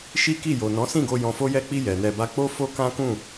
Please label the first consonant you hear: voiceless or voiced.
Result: voiceless